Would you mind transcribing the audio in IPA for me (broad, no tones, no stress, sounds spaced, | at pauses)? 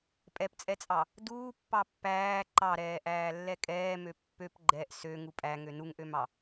pʼ ɛ p t͡sʼ ɛ t͡sʼ ɑ | d uː pː ɑ pː æː ǃ ɑ ɾ ɛː ʔ æː lː ɛ kʼ ɛː m ø pː ø p ɡ͡ǃ ɛ ʔ s ø ŋ u pʼ æ ŋ ø n u ŋ ʔ ø m ɑ